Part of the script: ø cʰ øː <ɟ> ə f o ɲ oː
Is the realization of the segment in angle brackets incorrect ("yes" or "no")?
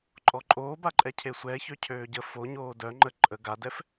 no